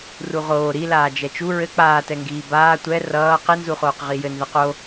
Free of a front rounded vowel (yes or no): yes